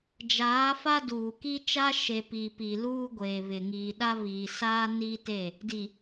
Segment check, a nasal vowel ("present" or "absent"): absent